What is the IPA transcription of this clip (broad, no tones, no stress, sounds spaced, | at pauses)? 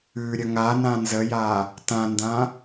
ʉ ɾʲ ə ŋ a n ã n z ə j a | t ã n d ã